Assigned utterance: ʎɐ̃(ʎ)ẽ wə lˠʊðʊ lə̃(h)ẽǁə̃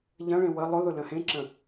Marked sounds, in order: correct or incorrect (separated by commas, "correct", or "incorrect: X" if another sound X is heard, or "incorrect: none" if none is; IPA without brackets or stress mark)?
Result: incorrect: ɭ, correct